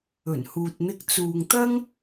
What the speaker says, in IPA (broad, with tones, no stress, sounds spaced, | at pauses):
ɵ˨˩ n h uː˨ t̚ n̪ ɪ˧ k̚ t͡s uː˨ ŋ t̪ ɐ˥ ŋ